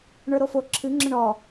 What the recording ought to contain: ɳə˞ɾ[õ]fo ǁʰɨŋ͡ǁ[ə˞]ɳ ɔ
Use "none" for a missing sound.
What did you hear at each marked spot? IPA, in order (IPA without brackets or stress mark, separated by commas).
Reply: o, ə